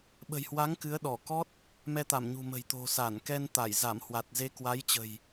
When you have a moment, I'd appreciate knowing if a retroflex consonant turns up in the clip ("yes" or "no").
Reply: no